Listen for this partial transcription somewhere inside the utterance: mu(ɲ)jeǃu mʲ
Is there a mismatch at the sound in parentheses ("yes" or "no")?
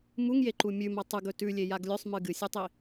yes